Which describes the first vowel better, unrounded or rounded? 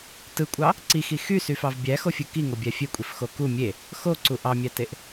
unrounded